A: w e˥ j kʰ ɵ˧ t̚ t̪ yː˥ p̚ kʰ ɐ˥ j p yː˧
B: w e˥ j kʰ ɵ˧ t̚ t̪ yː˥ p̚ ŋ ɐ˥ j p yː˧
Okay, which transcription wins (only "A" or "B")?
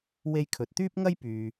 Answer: B